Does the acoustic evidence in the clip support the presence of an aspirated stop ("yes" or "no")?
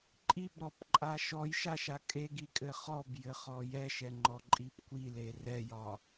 no